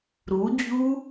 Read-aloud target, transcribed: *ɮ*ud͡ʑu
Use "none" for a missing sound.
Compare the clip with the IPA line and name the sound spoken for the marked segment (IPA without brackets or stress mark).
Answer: ɾ